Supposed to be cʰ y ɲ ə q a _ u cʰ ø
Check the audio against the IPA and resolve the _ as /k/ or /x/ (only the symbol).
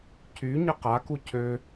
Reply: k